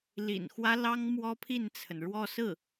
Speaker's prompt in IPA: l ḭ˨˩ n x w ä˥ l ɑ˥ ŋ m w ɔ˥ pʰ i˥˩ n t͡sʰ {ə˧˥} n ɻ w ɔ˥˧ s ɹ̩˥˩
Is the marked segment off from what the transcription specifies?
yes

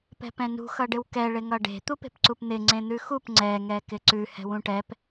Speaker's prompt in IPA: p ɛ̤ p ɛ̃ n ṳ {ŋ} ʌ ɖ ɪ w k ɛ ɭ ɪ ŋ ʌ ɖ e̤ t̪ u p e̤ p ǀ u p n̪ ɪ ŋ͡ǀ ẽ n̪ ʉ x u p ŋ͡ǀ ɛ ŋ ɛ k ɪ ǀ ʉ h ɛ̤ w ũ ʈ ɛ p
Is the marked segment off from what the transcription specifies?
yes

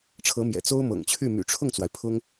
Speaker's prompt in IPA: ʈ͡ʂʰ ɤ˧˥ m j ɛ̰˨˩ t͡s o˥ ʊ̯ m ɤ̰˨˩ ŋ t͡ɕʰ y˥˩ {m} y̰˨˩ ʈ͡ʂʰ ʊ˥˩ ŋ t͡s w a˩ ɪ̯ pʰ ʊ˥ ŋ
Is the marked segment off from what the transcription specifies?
no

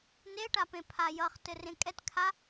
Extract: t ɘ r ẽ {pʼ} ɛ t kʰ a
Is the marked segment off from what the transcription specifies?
yes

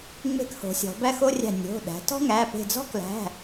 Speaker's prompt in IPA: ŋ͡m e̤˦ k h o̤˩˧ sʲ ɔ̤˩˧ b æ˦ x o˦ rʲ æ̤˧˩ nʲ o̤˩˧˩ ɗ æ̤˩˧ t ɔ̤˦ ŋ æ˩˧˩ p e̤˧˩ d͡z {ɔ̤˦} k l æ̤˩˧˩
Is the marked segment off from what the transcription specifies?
no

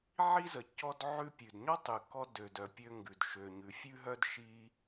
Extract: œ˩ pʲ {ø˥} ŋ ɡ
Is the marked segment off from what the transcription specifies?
no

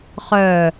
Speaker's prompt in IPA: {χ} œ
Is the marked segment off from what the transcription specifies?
no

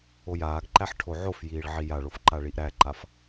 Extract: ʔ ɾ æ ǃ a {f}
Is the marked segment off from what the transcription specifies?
no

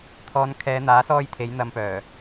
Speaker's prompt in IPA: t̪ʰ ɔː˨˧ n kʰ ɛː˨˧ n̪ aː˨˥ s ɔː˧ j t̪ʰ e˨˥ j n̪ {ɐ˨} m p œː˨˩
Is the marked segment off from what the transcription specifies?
yes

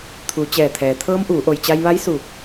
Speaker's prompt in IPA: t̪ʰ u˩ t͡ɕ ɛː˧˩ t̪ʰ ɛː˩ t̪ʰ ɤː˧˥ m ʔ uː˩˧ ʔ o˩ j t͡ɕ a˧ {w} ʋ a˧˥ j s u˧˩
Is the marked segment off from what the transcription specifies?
yes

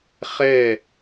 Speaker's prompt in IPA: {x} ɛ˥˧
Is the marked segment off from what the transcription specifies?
yes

